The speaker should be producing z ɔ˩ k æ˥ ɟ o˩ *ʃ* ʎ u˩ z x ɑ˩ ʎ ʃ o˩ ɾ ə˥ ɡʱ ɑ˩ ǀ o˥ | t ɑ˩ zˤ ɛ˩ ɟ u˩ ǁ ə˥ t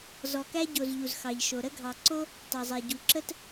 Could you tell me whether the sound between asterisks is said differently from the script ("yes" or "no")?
yes